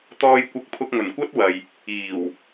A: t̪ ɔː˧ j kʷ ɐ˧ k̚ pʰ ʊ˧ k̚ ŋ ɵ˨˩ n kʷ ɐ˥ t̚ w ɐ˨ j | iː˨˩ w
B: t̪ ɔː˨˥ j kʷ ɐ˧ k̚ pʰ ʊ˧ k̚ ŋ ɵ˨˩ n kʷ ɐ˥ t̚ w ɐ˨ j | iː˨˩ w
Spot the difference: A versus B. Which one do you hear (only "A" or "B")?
A